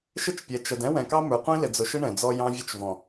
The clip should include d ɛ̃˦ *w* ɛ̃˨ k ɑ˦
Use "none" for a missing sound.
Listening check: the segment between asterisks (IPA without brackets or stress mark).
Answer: w